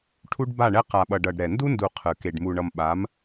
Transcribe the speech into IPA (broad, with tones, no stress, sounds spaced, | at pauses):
ʈʰ u˦ ɖ b a˦˨ ɳ ɛ˦ q a˨ ɓ ʌ˨ ɖ ʌ˨ ɖ ɾ ɛ˨ n d u˦ n d u˨ qʰ ɯ˨ k e˨ ɖ m u˨ ɳ ʌ˨ m ɓ a˨˦ m